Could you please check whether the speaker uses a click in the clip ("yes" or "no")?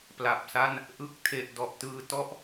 no